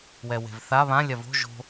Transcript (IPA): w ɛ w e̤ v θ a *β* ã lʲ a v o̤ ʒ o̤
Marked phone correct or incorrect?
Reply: correct